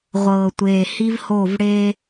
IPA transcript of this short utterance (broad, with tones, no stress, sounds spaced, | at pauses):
ʁʷ ɤː˨ tʷ eː˨ h i˦ v h o˦˨ v ɽ eː˦